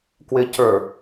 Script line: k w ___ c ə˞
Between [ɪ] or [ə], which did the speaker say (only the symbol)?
ɪ